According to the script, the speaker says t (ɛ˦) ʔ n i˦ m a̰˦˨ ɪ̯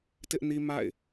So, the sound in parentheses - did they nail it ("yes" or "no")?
no